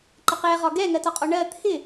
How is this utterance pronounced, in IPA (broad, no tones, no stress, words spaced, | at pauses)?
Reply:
ǃəqɛʁɒ ɡɛŋɜtɒqʼɔ ɳɜ t̪ʰɪ